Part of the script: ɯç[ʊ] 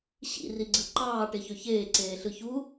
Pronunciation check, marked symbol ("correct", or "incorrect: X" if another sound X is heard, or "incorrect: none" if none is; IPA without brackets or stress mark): incorrect: u